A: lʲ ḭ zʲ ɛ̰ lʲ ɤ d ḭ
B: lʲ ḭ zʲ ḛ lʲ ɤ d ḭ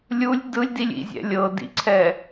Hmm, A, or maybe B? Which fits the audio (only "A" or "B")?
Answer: A